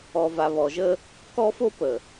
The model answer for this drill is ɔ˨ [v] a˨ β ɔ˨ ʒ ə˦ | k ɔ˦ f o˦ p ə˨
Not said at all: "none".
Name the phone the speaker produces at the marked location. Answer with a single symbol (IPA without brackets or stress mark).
v